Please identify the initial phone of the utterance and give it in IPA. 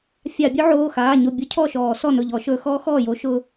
fʲ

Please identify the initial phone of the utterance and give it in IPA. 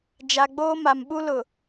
d͡ʒ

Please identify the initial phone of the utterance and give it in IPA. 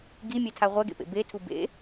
ɡ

